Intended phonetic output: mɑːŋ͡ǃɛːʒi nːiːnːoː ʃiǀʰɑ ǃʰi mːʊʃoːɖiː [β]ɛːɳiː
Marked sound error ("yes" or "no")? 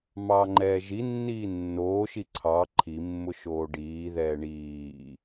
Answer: yes